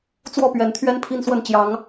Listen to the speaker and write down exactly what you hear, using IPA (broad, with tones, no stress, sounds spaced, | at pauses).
t͡s w ɔ˥˨ p ɥ ɛ˨˦ n t̪ʰ ɥ ɛ˦ n pʰ i˦ n s w ə˥˨ n t͡ɕ j ɑ˨˦ ŋ